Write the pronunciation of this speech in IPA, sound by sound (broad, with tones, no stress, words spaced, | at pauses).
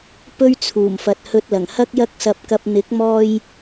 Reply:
pɵ˥ɥt͡sʰuː˨˩mfɐ˨t̚ hɵ˧t̚lɐ˨˩ŋ hɐ˥k̚jɐ˥k̚sɐ˧p̚kɐ˧p̚ n̪ɪ˨˥k̚mɔː˧j